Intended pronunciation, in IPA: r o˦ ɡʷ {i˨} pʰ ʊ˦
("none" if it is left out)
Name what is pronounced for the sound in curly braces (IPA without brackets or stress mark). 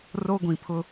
ĩ˨